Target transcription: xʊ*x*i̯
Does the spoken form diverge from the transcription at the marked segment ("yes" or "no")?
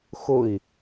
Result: yes